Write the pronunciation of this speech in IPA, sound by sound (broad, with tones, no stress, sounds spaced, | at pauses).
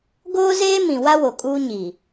ɡ oː˦ z eː˦ m ĩ˨ w a˦ w o˨ kʼ uː˦ ɲ i˨